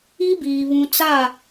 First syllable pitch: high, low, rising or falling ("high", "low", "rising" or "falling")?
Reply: high